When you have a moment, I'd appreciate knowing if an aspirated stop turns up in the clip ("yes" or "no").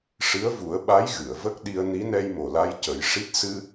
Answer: no